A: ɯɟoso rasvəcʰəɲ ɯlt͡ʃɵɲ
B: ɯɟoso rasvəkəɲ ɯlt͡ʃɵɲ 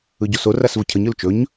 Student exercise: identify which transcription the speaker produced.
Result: A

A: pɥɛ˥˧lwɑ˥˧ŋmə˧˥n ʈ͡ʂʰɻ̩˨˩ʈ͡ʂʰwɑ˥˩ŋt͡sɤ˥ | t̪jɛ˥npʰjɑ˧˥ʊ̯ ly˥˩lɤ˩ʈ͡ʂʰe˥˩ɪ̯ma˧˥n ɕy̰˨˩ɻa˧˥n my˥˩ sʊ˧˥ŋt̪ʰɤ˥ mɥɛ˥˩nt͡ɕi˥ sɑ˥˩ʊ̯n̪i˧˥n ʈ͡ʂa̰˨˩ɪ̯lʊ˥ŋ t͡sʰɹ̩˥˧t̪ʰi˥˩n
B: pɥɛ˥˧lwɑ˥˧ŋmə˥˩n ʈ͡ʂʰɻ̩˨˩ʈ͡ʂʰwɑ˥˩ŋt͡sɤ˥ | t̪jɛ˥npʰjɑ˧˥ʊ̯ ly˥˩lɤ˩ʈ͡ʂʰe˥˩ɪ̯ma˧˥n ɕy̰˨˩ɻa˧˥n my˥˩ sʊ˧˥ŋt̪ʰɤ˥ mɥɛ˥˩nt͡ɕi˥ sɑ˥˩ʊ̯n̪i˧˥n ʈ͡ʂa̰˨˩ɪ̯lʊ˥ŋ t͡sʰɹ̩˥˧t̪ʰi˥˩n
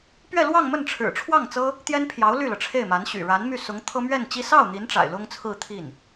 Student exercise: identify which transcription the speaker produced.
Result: B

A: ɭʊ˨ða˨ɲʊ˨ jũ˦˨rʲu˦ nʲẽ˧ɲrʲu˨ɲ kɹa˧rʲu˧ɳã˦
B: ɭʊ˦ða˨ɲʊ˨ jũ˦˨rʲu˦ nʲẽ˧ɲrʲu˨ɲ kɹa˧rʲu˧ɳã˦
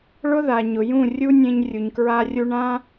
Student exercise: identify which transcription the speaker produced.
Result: B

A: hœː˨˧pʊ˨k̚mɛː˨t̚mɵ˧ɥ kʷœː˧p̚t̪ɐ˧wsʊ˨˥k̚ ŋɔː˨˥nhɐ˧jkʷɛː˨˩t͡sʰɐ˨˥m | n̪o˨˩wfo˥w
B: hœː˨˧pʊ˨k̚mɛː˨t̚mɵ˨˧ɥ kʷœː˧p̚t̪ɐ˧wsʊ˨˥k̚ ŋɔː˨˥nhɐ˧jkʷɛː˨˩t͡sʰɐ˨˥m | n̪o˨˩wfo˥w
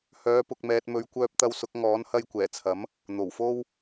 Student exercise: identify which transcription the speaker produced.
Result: B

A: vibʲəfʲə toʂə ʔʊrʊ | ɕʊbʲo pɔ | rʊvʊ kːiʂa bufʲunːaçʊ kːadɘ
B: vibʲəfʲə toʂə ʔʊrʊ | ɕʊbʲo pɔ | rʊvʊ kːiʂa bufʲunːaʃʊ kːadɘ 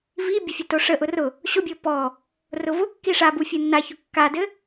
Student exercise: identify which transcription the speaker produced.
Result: A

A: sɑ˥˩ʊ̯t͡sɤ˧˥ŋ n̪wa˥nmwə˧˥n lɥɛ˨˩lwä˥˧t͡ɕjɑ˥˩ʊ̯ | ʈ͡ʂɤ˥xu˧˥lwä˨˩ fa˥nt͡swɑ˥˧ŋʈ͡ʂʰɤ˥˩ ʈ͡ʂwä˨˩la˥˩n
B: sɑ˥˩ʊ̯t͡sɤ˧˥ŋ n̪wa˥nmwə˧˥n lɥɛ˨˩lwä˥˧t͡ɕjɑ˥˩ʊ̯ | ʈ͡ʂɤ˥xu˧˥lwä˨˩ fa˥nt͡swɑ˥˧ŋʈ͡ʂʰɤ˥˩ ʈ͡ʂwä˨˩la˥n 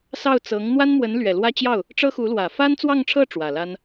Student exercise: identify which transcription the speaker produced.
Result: B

